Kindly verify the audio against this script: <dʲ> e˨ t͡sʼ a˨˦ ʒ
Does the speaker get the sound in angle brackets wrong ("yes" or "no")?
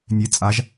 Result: yes